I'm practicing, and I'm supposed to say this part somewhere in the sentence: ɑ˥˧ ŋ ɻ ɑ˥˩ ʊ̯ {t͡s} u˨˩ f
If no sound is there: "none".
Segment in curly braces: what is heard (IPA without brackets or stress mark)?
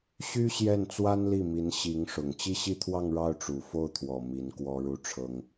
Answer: ʈ͡ʂ